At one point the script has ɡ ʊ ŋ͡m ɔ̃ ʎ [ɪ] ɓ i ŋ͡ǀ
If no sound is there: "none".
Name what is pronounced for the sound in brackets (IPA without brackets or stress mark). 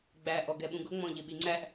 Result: ɪ